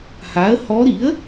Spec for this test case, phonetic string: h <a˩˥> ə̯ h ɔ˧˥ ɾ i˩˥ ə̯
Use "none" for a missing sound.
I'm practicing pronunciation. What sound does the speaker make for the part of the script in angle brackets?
a˩˥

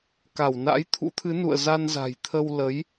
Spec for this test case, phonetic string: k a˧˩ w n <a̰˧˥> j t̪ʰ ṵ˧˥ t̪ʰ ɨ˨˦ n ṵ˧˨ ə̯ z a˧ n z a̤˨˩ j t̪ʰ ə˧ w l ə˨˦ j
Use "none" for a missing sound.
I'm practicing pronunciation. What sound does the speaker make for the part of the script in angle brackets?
a̰˧˥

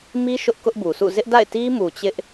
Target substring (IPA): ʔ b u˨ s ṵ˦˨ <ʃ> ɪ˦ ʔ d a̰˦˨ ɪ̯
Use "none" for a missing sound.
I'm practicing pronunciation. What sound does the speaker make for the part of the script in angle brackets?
z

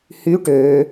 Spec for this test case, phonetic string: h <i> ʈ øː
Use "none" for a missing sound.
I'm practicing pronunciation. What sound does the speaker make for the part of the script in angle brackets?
y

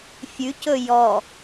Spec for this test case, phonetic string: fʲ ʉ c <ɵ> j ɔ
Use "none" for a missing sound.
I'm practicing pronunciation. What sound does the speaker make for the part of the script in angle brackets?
ɵ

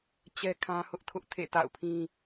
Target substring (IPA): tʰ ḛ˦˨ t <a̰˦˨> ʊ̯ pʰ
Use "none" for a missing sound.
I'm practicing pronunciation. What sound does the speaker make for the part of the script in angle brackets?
a̰˦˨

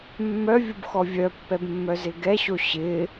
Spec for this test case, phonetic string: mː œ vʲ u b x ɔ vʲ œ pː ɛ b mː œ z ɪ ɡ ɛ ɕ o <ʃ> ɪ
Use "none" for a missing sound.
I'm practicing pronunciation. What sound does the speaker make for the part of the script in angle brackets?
ɕ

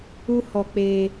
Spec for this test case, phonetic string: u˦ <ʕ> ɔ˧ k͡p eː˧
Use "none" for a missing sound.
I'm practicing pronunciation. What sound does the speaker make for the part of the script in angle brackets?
h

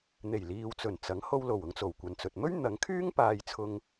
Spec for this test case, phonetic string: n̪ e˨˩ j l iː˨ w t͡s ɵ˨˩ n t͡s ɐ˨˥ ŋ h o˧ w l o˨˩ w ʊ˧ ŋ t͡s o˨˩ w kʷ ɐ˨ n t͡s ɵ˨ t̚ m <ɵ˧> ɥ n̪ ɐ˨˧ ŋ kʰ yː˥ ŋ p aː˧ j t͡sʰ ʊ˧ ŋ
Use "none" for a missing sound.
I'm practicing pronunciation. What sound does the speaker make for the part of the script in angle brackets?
ɵ˥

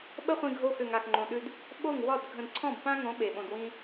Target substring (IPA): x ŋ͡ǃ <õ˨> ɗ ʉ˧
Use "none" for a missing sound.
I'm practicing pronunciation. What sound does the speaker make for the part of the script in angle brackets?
õ˨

